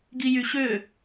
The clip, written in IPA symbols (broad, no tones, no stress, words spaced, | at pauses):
ɡijyɕø